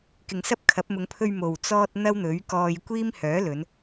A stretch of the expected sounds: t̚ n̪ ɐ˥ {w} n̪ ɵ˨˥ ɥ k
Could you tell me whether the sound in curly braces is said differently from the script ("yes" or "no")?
no